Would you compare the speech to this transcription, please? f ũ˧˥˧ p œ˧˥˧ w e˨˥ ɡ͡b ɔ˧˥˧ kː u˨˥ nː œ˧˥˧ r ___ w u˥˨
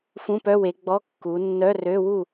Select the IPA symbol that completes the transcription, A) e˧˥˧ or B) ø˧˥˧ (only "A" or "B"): B